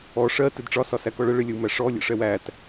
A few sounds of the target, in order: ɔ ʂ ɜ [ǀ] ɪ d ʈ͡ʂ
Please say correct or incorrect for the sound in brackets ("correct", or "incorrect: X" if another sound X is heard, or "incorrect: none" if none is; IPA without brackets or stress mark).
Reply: incorrect: t